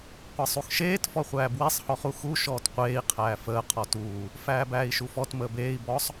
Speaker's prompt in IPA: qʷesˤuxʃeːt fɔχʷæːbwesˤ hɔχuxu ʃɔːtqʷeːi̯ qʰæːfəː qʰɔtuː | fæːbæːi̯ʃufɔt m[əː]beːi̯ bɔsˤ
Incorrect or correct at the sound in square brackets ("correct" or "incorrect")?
correct